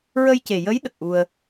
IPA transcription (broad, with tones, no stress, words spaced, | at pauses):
ɹə˧jce˨˩jə˧˥j ɗə˨˩k̚ʔu˧ə̯